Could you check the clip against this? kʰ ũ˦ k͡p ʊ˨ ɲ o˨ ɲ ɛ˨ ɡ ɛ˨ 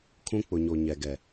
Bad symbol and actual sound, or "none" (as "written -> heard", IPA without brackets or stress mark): none